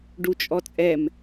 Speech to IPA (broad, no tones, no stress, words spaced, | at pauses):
ɖut͡ʃʼɔt͡sʼɛm